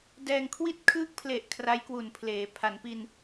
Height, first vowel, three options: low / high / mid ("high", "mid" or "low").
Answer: mid